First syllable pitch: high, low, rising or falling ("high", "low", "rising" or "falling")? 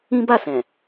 high